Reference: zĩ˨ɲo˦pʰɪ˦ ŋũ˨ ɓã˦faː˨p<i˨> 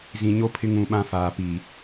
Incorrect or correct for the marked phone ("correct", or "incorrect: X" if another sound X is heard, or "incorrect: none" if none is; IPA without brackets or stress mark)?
correct